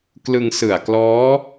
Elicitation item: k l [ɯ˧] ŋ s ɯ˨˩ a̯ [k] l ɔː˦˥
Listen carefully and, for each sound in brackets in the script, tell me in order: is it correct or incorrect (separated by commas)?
correct, correct